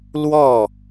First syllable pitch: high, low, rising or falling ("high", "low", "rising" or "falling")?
falling